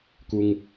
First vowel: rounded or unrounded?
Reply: rounded